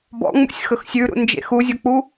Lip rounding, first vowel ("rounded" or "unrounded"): rounded